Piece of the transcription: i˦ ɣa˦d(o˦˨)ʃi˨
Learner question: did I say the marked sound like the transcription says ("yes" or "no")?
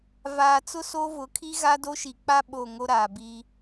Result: no